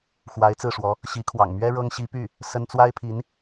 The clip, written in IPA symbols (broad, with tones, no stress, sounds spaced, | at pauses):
x w a˧˥ ɪ̯ t͡s ɹ̩˥˩ ʂ w ɔ˧˥ | ɕ i˧˥ kʰ w ɑ̰˨˩ ŋ m ɥ ɛ˥ ɻ ɤ˥ ŋ ɕ i˧˥ p y˥˩ | s ə˥ n t͡s w a˥ ɪ̯ pʰ i˧˥ n